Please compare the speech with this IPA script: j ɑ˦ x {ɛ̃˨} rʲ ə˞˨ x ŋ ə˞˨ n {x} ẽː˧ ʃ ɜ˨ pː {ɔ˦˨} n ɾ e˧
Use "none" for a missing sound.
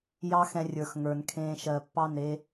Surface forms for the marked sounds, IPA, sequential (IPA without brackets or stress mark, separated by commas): ɛ̃˧, kʰ, ɑ˦˨